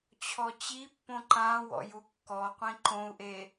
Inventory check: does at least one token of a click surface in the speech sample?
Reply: yes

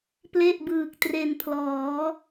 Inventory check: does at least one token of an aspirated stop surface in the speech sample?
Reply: yes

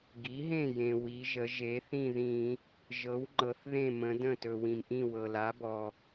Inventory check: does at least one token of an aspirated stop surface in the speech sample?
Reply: no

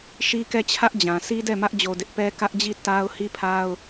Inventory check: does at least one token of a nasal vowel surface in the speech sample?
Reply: yes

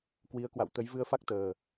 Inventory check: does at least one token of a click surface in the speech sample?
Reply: no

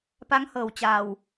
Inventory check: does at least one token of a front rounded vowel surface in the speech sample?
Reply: no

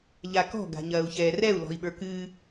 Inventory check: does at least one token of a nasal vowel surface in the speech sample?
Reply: no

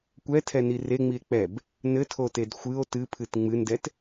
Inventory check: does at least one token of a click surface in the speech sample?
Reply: no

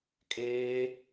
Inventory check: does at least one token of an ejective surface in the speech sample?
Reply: yes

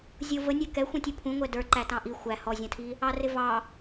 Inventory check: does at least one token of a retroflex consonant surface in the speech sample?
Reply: no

